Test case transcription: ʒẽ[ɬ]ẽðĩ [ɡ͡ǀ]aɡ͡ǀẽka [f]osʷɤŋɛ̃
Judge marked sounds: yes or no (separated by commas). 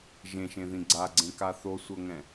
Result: no, yes, no